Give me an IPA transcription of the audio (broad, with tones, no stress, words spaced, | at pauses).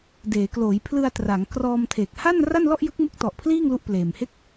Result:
deː˩˦kloː˩˦j pʰlɯ˧a̯tra˩˦ŋkrɔː˧mtʰe˨˩k̚ ha˥˩nra˥˩nlɔ˥˩ʔ jɯ˦˥k̚mu˦˥k̚tɔ˨˩ʔpʰliː˥˩ŋ lu˦˥ʔpleː˨˩m he˥˩k̚